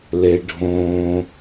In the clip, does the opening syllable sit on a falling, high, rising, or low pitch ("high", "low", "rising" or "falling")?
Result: low